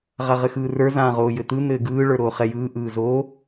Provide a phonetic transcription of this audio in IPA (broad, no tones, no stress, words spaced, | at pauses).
ʁaʁɘxɯːrə˞ zãːʁoːjɘt̪ɯ n̪ɘːɡɯː ɭə˞ɾoːχɛjɯː ʔɯːzo